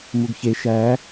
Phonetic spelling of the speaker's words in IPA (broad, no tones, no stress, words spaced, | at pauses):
muɡçe ʃæ